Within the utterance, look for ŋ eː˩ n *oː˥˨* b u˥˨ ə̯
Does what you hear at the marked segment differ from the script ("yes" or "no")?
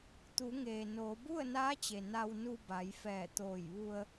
yes